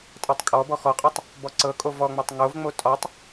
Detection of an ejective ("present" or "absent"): present